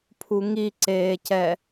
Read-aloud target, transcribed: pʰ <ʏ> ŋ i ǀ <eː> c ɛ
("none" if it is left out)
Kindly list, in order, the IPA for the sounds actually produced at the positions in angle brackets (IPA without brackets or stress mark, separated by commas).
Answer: u, eː